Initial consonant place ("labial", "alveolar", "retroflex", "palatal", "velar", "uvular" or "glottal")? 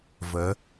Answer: labial